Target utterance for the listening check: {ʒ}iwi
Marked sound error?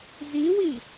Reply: yes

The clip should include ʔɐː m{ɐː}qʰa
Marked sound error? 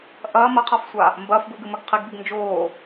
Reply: yes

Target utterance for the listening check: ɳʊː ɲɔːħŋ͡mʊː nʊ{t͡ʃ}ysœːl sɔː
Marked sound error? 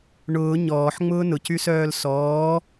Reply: yes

